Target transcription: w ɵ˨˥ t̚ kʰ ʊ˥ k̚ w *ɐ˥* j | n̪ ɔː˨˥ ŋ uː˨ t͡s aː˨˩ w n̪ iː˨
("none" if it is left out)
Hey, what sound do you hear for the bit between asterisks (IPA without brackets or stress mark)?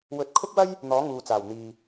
ɐ˥